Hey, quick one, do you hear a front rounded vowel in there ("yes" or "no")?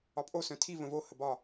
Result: yes